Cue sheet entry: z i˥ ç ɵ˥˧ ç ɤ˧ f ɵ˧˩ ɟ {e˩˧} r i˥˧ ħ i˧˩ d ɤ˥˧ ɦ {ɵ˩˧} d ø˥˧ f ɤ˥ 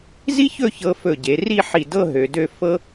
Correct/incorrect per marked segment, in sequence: correct, incorrect

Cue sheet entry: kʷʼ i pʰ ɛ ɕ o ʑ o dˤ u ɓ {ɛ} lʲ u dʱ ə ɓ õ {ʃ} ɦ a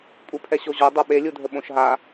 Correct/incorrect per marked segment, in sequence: incorrect, correct

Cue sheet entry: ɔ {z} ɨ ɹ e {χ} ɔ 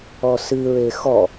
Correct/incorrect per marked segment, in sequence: incorrect, incorrect

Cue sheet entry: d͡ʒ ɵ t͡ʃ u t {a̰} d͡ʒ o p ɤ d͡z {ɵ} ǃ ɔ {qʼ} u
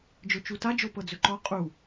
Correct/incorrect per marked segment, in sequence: incorrect, correct, correct

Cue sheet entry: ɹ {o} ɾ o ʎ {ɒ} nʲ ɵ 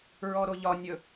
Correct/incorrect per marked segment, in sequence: incorrect, correct

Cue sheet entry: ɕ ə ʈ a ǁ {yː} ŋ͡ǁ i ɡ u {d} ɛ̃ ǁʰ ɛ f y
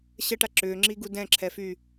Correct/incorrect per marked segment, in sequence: incorrect, correct

